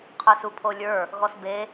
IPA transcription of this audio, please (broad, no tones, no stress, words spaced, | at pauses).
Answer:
qʰə˞supʰolʲə˞ | ɣɔsbe